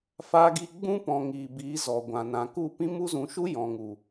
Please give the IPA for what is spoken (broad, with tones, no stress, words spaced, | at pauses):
fa˧ɡi˧ɡ͡bũ˦pɔ̃˨ ŋiː˨biː˨˦zɔ˨ɡʷã˨ nã˨ku˦˨pĩ˦ mu˦zũ˧ʃu˦ jɔ̃˨ŋu˨